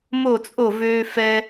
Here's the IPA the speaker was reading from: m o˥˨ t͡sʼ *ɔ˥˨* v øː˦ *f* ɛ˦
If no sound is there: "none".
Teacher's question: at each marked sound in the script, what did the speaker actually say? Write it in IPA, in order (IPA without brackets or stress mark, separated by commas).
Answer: o˥˨, f